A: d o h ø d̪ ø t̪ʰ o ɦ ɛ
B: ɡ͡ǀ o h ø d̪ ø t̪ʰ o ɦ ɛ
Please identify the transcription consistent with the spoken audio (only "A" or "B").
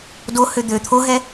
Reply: A